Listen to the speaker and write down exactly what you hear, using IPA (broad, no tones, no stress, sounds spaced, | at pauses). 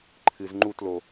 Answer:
ǃʰ ɨ z ŋ͡ǃ u t l o